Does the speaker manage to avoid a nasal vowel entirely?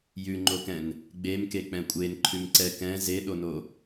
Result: no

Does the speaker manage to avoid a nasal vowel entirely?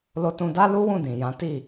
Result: no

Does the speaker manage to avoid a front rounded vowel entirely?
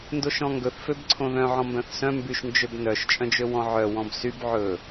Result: no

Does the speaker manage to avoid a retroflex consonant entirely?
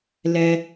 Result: yes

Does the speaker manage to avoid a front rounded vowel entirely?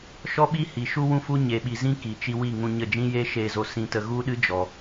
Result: yes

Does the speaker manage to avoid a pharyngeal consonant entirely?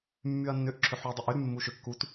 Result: no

